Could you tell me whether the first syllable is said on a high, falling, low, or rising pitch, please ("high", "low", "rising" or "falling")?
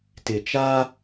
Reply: low